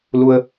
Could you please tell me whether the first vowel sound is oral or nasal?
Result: oral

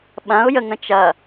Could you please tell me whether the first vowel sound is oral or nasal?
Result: nasal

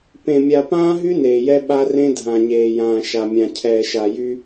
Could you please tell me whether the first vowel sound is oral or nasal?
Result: nasal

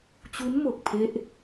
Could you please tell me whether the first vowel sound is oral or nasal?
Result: oral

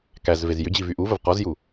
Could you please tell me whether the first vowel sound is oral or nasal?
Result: oral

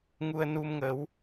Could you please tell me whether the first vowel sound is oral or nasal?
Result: oral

